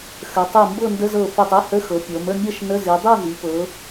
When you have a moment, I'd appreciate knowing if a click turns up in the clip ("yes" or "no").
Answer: no